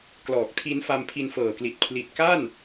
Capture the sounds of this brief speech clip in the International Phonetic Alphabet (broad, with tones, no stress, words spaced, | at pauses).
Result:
klɔː˨˩k̚tʰi˦˥n fa˧mpʰi˧nfɤː˨˩kli˨˩t̚ kʰli˨˩t̚ka˥˩n